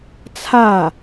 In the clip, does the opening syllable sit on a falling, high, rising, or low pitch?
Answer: falling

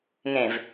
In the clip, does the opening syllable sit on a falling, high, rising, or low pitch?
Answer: low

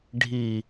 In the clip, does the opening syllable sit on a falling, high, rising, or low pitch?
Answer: low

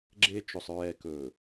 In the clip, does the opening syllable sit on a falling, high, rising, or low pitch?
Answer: high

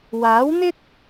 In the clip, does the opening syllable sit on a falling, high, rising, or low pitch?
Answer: rising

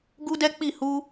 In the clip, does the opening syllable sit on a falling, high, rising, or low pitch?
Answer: high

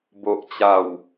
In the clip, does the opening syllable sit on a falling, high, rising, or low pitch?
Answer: low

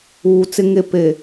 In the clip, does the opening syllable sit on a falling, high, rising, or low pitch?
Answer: low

